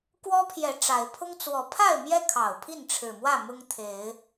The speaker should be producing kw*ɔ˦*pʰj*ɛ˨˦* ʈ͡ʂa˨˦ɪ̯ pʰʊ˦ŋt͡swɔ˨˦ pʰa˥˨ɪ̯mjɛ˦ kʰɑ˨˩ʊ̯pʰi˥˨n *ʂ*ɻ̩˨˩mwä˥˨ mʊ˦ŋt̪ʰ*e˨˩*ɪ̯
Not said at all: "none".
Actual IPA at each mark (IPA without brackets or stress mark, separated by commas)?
ɔ˦, ɛ˨˦, ʈ͡ʂʰ, e˨˦